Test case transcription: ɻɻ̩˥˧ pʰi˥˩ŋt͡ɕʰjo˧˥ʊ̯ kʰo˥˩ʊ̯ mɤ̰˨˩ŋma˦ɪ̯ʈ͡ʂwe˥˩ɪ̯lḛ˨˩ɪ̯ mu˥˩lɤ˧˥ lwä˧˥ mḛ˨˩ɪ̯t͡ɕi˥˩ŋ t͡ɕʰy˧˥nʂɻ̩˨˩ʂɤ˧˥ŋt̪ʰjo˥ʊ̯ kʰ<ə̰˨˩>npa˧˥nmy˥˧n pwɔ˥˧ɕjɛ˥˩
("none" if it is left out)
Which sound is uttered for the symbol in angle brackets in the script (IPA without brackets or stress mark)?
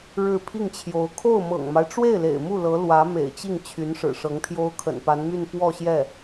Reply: ə̰˨˩